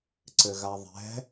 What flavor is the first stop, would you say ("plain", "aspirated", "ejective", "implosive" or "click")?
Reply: click